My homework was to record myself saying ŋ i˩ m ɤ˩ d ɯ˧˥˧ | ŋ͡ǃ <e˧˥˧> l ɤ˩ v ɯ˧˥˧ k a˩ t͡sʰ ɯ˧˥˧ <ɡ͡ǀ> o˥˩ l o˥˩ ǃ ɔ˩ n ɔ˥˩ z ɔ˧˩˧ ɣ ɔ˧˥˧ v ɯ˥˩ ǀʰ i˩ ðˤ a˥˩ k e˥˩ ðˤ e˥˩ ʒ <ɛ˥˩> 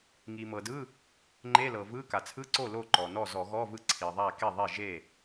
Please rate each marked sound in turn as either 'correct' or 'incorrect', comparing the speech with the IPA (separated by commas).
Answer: correct, incorrect, incorrect